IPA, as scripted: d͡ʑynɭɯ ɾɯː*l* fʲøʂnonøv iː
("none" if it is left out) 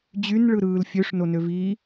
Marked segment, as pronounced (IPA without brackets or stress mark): l